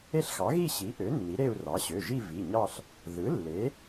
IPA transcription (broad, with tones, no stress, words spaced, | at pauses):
e˥˧ɬxɑ˩˥ ɣi˥˧ɕi˩˥ʔø˩˥ nːi˩˥ɾe˥˧u̯rɑ˩˥ ɕø˩˧˩ʒi˥˧ vi˩˧˩ɲɑ˥˧ɬ | ðɯ˩˥ lːe˩˥